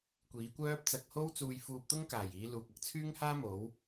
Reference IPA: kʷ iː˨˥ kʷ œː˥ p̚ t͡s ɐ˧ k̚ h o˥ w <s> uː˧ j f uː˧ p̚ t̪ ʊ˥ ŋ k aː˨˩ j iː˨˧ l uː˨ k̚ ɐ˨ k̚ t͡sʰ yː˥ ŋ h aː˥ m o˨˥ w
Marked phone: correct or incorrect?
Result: incorrect